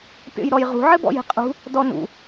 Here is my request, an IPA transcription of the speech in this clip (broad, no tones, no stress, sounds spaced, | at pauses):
pʲ ɔ̰ j ɾ ɔ j ʁ ṳ ʕ ɘ b ɔ̰ j e̤ qʼ ṳ | d ɔ n ṵ